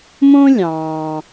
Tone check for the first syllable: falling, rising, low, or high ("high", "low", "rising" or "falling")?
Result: high